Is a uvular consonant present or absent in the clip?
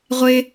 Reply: present